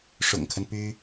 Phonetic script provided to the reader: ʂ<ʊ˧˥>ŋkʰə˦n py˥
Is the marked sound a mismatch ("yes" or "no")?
yes